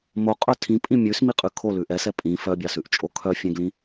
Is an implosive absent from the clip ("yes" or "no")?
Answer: yes